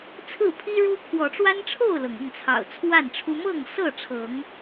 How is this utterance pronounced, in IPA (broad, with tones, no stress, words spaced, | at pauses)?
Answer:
t͡sʰɹ̩˥˨pʰi˦ɻu˦ kʰwɔ˨˦ʈ͡ʂwa˦nʈ͡ʂʰo˥˨ʊ̯lɤ˩ŋ ɤ˥˨ŋt͡sʰɑ̰˨˩ʊ̯ t͡sʰwa˥˨nʈ͡ʂʰu˦ mɤ˥˨ŋsɤ˥˨ʈ͡ʂʰɤ˨˦ŋ